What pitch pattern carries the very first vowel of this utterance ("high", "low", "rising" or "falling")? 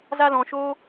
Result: high